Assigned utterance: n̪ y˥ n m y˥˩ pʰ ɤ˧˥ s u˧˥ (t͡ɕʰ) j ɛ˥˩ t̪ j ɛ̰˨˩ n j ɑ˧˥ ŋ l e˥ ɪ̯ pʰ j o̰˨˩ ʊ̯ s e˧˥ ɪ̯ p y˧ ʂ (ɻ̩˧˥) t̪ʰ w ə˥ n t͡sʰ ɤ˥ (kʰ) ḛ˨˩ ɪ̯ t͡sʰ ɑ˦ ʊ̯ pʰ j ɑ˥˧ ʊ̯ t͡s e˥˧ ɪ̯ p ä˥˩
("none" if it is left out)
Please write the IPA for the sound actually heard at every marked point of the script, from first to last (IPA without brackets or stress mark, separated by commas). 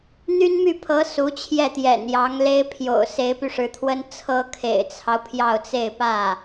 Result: t͡ɕʰ, ɻ̩˧˥, kʰ